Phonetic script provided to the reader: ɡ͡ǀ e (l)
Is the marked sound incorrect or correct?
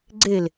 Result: correct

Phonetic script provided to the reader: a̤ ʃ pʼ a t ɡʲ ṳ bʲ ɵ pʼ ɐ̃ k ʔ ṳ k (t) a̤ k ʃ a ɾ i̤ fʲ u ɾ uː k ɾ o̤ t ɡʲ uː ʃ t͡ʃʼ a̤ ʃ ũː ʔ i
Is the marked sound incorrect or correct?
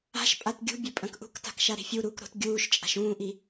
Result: correct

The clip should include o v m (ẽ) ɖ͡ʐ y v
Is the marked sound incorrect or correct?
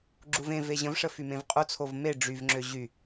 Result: incorrect: e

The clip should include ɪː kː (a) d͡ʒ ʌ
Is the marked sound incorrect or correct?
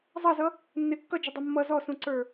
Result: incorrect: ʌ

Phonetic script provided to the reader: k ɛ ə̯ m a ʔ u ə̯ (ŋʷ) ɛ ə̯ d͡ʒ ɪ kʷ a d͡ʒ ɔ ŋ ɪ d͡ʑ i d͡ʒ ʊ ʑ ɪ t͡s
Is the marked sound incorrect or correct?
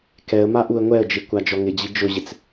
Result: correct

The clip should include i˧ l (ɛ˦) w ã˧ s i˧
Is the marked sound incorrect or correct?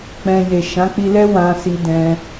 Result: correct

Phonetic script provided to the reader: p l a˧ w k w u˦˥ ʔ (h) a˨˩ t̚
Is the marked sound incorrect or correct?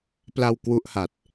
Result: correct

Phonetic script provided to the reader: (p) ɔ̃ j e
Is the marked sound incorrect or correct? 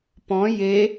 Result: correct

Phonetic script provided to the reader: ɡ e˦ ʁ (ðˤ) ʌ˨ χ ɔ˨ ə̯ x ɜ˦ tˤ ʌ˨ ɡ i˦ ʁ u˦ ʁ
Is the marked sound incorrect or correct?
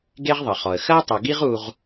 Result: correct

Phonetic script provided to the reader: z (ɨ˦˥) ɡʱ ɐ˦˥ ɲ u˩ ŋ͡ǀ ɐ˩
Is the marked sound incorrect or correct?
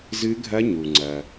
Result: correct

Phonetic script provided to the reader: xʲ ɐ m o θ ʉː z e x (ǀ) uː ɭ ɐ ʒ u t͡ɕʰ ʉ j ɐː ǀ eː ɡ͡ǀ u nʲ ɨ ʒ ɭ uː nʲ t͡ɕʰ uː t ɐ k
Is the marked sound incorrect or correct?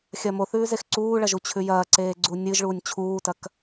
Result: correct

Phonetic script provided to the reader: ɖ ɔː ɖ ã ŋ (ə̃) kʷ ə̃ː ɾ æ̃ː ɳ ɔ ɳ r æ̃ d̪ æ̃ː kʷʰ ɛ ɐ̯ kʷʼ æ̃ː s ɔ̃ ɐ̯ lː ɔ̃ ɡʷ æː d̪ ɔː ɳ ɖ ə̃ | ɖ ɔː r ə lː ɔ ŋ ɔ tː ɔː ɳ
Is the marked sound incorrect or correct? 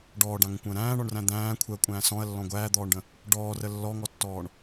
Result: correct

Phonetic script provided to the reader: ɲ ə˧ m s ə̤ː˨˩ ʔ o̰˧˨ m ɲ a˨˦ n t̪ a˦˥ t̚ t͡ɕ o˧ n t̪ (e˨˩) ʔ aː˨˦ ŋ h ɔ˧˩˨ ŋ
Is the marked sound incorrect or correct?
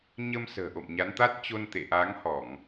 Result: incorrect: ḛ˧˨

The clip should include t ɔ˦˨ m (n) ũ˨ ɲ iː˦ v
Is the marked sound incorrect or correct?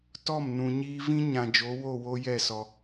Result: correct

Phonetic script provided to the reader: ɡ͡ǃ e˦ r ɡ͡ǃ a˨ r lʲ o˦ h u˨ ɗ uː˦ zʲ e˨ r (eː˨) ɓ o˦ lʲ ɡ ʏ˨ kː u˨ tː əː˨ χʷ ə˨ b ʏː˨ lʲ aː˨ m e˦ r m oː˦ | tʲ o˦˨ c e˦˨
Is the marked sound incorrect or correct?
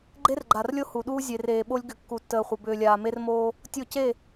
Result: correct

